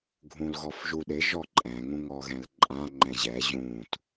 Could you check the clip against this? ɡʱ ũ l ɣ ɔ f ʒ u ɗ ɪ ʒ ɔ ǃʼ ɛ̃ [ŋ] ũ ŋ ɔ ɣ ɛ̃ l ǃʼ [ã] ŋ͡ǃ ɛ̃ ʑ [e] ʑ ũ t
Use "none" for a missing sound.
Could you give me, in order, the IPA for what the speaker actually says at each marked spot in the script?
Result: ŋ, ã, ɛ

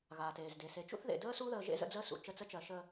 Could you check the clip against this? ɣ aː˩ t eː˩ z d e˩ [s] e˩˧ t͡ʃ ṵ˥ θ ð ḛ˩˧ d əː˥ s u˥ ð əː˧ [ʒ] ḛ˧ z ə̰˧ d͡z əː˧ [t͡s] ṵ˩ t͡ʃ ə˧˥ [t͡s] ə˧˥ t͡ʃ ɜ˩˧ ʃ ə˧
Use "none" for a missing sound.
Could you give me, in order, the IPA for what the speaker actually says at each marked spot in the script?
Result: s, ʒ, s, t͡s

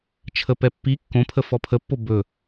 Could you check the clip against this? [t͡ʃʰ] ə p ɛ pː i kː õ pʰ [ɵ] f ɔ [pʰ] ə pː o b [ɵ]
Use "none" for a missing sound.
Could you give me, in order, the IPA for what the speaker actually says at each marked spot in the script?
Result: t͡ʃʰ, ə, pʰ, ɵ

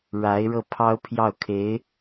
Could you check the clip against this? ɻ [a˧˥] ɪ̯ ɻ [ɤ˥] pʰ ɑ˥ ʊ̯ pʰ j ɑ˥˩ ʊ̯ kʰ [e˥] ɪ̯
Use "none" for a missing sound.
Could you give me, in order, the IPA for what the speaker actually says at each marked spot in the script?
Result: a˧˥, ɤ˥˩, e˧˥

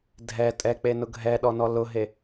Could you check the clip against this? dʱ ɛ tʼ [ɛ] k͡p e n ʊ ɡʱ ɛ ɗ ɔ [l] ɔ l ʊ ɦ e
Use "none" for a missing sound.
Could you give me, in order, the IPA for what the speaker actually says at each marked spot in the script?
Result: ɛ, n

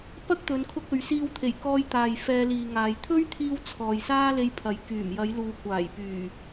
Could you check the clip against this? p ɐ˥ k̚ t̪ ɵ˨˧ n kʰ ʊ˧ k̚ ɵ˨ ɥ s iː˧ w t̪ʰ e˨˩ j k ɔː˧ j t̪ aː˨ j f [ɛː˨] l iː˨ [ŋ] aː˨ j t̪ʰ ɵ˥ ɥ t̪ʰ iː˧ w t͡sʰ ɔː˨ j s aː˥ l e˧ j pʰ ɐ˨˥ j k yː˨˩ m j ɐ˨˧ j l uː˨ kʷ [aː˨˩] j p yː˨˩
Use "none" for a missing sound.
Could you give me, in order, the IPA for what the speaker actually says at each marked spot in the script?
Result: ɛː˧, ŋ, aː˨˩

